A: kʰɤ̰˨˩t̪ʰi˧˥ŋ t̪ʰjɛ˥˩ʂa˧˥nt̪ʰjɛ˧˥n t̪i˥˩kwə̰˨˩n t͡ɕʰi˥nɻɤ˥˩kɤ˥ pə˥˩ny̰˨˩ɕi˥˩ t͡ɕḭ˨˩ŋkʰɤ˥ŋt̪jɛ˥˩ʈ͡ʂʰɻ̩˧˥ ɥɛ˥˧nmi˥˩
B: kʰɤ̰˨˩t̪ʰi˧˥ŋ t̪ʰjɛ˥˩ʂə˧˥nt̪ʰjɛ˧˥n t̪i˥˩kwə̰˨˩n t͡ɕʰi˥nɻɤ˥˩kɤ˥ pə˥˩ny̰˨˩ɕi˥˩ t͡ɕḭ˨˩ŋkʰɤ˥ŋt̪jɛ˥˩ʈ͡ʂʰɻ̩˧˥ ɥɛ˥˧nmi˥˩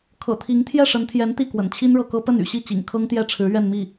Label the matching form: B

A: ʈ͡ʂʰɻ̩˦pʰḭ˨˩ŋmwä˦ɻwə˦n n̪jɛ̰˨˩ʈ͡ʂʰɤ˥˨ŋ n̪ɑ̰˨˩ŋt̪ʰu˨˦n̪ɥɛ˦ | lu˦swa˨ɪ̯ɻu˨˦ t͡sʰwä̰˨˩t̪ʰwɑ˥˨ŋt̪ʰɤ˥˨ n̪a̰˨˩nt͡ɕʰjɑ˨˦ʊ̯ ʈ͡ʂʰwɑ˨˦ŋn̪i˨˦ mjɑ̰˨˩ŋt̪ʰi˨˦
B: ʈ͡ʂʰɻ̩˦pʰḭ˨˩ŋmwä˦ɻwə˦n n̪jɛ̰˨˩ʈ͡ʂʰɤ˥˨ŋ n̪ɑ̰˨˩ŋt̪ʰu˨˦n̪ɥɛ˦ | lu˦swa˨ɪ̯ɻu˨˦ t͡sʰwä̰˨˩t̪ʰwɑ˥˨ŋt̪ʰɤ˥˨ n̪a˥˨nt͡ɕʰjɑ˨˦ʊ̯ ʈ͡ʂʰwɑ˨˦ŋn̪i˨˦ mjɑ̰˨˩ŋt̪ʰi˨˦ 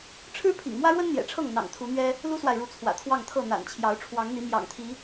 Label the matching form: A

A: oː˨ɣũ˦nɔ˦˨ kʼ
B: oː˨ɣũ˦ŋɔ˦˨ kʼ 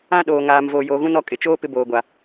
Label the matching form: A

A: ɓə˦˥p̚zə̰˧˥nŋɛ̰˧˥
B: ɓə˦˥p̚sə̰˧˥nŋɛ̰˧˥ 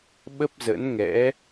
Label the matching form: A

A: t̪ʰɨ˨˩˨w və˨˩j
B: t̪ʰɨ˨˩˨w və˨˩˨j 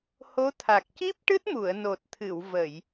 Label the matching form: B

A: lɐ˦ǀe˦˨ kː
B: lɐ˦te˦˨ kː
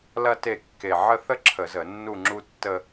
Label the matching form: B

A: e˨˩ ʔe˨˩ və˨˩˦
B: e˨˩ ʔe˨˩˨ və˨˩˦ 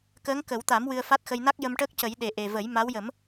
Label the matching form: A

